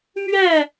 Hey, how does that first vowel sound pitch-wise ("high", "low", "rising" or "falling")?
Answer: falling